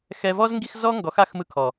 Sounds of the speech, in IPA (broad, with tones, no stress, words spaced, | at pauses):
xɛ˧vɔ˦z ŋɡi˦xzɔ˦ŋɡɔ˨˦x a˦xmɯ˧kʰɔ˨